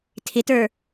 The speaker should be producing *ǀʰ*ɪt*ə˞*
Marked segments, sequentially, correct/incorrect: incorrect, correct

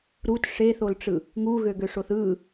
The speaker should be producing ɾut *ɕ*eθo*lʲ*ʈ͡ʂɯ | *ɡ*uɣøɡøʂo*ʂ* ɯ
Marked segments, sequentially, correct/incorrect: incorrect, incorrect, incorrect, incorrect

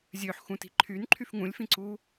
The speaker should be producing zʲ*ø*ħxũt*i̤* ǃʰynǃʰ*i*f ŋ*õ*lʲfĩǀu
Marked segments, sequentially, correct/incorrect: correct, correct, incorrect, incorrect

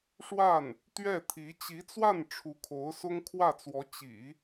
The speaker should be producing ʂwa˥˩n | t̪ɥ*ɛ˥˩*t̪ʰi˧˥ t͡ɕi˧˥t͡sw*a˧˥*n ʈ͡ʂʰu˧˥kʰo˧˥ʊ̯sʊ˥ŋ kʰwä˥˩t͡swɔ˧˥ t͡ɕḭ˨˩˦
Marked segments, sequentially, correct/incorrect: correct, incorrect

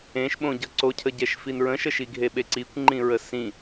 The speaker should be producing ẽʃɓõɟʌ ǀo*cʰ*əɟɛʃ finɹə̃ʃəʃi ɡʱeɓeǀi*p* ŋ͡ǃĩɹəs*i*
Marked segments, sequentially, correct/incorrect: correct, incorrect, incorrect

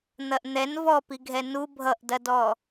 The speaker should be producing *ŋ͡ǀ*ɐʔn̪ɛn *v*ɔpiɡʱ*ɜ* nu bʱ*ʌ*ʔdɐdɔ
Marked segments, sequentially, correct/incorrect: incorrect, correct, incorrect, correct

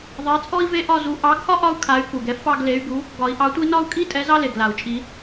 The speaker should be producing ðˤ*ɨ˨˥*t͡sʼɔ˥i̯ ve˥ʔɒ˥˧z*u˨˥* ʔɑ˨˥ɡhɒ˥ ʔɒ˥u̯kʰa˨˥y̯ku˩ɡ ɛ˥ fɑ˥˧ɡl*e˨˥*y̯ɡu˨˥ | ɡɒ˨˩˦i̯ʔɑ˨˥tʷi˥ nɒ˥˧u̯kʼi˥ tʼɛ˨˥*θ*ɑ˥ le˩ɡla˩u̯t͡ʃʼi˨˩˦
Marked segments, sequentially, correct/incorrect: incorrect, correct, correct, incorrect

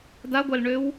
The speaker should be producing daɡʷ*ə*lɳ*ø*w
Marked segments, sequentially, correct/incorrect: incorrect, correct

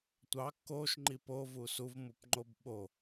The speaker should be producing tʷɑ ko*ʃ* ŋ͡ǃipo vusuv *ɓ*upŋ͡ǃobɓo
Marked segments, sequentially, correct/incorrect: correct, incorrect

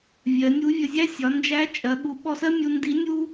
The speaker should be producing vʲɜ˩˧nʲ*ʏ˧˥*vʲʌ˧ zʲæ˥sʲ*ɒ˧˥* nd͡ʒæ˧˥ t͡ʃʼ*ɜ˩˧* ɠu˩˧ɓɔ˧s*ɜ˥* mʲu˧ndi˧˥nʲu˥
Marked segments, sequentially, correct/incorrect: incorrect, incorrect, correct, correct

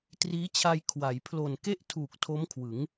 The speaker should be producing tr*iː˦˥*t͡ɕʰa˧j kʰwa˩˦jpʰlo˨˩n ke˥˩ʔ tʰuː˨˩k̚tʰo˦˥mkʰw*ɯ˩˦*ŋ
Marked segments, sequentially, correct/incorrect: correct, correct

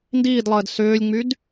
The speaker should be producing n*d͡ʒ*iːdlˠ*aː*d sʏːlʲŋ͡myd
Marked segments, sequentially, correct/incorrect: incorrect, incorrect

